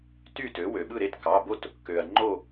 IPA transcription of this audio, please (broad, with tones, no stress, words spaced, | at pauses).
ty˥˨tø˩˥ wø˩ɓɯ˥˨ɾe˥˨t kɑ˩˧˩bo˥˨t | kø˩ɐ̯ ŋ͡ǃo˥˨